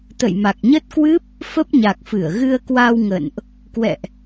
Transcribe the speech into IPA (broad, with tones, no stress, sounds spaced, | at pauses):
t̪ ə̰˧˨ j m a˨˩ k̚ ɲ ə˦˥ t̚ k w ɨ˦˥ p̚ | f ə˦˥ p̚ ɲ a˨˩ k̚ f ɨ˧˩ ə̯ ɣ ɨ˧ ə̯ k w a˧ w ŋ ə̰ː˧˨ n ʔ | k w ɛ̰˧˨ ʔ